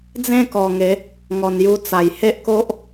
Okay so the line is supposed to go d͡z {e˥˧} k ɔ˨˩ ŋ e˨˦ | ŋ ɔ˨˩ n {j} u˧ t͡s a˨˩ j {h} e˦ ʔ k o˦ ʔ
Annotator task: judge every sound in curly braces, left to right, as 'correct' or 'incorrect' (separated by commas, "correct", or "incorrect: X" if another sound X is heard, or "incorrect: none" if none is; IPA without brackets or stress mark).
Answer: incorrect: ẽ˥˧, correct, correct